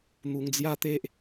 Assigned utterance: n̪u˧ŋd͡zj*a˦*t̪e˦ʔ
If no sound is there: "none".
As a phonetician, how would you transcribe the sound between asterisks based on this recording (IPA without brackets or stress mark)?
a˦